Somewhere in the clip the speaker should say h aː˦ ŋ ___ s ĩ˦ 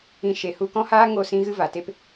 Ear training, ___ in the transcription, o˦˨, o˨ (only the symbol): o˦˨